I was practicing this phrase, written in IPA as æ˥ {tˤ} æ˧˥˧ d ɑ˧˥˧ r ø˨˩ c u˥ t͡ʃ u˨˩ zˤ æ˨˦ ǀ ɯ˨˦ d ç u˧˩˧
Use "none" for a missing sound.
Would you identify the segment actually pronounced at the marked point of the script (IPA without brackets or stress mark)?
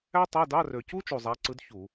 tˤ